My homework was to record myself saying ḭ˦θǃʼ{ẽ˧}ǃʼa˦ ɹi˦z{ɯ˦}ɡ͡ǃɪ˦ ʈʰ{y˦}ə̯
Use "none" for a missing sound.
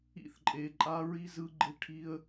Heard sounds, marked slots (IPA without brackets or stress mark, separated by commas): e˧, ɯ˦, i˦